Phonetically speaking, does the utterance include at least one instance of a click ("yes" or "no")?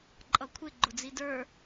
yes